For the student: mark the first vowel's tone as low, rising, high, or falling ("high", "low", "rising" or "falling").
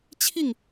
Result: falling